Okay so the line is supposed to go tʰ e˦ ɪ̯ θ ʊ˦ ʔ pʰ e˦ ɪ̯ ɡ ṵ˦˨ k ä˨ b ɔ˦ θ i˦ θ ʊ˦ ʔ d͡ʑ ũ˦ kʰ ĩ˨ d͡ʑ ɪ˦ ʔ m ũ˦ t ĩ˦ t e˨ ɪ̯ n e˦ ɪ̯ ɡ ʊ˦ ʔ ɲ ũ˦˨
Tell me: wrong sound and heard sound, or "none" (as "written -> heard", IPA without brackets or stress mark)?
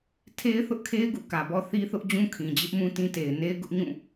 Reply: pʰ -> kʰ